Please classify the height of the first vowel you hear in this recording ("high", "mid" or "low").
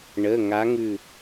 mid